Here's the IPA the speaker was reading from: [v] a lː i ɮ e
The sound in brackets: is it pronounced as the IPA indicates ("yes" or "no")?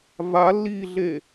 yes